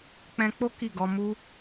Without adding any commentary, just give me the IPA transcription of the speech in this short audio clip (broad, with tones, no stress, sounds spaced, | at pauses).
k͡p ɛ̃˧ k͡p o˦ k i˦˨ ɡ ɔ˧ m u˧